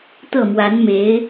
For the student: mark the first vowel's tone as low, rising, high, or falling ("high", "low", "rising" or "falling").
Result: falling